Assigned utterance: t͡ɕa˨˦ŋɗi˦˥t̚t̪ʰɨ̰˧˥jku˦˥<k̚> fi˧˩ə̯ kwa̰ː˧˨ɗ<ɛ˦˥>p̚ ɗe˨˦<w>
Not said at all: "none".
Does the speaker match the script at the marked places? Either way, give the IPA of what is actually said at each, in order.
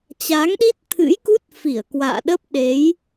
t̚, ə˦˥, j

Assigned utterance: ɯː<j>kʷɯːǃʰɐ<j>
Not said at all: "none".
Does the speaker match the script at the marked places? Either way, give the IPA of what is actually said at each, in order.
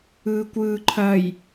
none, j

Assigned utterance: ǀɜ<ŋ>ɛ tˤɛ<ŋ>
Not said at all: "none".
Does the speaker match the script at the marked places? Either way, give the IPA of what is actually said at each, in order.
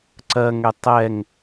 ŋ, ŋ

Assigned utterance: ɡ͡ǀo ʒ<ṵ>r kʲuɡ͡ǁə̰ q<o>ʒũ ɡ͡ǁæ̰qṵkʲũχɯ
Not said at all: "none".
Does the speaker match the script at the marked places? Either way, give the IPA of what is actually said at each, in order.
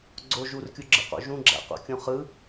u, o̰

